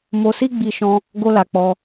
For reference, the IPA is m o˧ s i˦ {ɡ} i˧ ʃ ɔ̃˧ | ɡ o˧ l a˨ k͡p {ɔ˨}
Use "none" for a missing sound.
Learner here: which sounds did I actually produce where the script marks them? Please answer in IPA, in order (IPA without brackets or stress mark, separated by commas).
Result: ɡ͡b, ɔ˧